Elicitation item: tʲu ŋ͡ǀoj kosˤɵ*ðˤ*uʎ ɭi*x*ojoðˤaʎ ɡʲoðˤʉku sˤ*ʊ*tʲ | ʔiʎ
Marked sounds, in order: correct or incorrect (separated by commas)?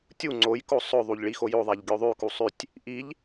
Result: correct, correct, incorrect